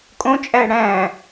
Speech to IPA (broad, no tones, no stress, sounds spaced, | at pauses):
kʼ õ t͡ʃʼ æ ɽ æ̃